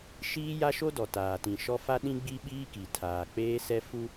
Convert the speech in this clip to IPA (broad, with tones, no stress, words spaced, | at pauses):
ʃiː˦ja˦ʃo˦ dɔ˨taː˨tĩ˨ʃɔ˦ fa˦ɗĩ˦ɡ͡bi˦ɓiː˦ ki˨ tʰaː˨k͡peː˦sɛ˦ fu˦